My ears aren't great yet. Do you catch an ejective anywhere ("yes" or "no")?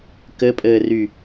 yes